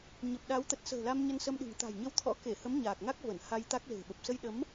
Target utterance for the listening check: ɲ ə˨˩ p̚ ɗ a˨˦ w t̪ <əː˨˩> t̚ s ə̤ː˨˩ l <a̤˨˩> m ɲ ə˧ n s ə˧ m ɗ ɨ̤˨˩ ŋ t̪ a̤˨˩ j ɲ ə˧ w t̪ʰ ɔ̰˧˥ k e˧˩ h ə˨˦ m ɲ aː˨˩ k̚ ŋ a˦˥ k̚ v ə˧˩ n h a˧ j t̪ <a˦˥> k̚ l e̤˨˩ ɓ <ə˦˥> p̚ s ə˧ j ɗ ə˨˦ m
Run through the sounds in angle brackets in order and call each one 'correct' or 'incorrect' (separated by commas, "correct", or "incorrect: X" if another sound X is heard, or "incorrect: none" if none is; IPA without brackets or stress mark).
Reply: incorrect: ə˨˩, incorrect: a˧, correct, incorrect: ə˨˩